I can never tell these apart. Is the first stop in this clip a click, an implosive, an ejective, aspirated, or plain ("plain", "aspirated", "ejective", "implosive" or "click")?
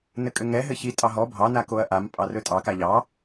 ejective